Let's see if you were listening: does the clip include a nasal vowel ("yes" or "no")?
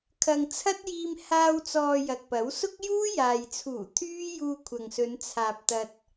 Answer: no